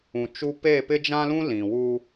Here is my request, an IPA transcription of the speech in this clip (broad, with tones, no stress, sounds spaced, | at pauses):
ũ˨ t͡ʃ u˦ p e˦˨ p ɪ˦ d͡ʒ ã˦ l ũ˦ l ĩ˨ w u˦